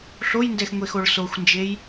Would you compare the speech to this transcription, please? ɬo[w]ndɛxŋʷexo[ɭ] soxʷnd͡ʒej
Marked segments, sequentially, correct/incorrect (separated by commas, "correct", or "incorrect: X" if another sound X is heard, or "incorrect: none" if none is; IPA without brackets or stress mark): incorrect: j, correct